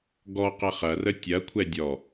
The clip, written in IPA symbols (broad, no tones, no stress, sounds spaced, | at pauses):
ɡ ɔ q ɐ χ ɐ r ə tʲ ɐ kʷʰ ɛ dʲ ɔ